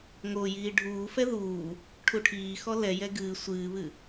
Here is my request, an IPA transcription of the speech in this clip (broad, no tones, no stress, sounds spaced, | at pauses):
ŋ o j iː ɖʱ uː f ɛ ð uː | ʈʰ u ʈʰ iː x ɔ l ɛ j ɛ ɡ ɨː sʷ ɨː β ɨ